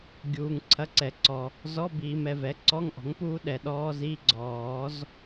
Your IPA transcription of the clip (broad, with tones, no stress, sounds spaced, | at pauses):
ɡʲ uː˨ ŋ ǀʰ ɐ˧˥˧ ǀ ɛ˨˩˦ ǀ ɔ˨ | z ɔ˧˥˧ b iː˨ m ɛ˨ v ɛ˩˥ ǀ ɔ˧˥˧ ŋ ʔ ɔ̤˩˥ ŋ p uː˦˥ ɗ ɛ˨ ɗ ɔː˦˥ z i˧˥˧ ɡ͡ǀ ɔː˨˩˦ z